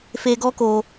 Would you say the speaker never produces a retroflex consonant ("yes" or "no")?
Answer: yes